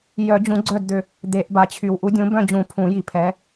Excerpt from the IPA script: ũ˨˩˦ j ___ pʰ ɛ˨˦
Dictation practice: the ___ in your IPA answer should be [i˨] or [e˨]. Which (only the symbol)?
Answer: i˨